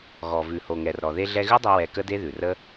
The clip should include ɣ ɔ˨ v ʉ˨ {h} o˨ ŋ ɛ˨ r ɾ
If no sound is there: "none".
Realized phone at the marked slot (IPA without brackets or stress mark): h